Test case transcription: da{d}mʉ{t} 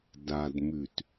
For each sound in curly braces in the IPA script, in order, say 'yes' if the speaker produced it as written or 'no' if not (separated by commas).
yes, yes